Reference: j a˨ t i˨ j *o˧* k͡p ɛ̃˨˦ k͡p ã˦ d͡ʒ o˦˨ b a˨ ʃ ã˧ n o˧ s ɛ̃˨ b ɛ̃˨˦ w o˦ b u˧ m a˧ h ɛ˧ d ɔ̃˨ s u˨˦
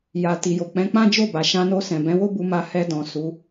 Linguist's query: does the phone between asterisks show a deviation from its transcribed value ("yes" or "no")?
yes